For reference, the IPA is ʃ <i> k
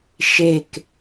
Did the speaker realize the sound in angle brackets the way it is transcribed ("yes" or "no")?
no